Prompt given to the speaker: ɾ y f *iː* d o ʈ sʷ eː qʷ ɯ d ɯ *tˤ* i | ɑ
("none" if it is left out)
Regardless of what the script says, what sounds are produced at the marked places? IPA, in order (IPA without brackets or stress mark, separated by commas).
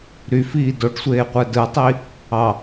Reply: iː, tˤ